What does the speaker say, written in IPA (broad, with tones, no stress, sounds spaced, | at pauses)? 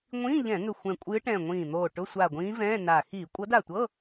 ŋʷ ĩː˧˥˧ ʎ ɛ̃˧˩˧ ŋ ʏ˧˩ xʷ ɛ̃˧˩ kʷʼ ɨː˧˥ ʈ ɛ̃ː˧˩ ŋʷ ĩː˧˩ n̪ oː˧˩ ʈ ʊ˧˥˧ sʷ a˧˩ ɡʷ ĩː˧˥ v ɛ̃ː˧˥˧ n a˧˩ x iː˧˩˧ kʷʼ ɤ˧˥ d a˧˩ tʷ ɤː˧˥˧